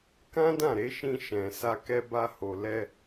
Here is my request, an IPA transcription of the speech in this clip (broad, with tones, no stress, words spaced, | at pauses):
kã˦dã˦˨ɾe˨˦ʃĩ˧ ʃɛ̃˨sa˧kɛ˧ba˧ ho˨lɛ˧